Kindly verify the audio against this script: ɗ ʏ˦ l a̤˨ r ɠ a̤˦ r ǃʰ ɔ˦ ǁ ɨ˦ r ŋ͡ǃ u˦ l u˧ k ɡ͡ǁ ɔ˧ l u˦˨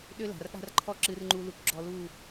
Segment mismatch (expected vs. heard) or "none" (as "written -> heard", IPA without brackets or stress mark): none